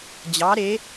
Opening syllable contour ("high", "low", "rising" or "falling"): rising